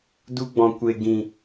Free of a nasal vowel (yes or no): no